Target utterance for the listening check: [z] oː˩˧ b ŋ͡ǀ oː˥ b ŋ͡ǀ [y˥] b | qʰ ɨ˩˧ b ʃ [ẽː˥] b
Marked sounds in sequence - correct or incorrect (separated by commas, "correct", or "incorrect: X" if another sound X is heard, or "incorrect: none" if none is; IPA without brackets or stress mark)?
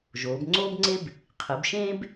incorrect: ʒ, incorrect: e˥, correct